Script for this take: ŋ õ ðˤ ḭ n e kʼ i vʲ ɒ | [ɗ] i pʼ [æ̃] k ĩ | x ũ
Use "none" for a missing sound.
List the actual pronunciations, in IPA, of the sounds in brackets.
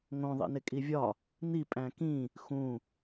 n̪, æ̃

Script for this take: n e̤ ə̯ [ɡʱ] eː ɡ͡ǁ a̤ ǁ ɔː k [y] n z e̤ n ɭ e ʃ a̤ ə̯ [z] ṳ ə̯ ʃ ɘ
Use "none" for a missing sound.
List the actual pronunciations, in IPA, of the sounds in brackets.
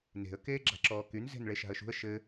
k, y, ʃ

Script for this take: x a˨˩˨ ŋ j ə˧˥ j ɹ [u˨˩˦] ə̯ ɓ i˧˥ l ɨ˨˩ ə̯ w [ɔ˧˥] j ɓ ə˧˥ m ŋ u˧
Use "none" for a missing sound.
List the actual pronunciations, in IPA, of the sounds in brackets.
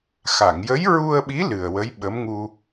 u˧, ə˧˥

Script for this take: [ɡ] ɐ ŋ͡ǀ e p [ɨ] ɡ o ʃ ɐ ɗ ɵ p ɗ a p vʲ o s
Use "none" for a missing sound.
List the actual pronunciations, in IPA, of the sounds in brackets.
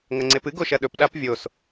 ŋ, ɨ

